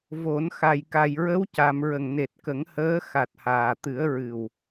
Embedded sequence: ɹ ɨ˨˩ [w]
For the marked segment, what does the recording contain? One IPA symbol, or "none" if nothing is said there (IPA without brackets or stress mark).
w